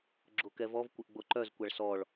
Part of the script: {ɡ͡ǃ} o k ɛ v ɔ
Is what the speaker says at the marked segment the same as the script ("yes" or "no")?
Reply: no